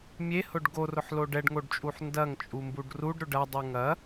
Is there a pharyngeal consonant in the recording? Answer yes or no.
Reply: yes